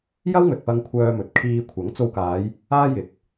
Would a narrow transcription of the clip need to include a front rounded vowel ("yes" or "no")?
yes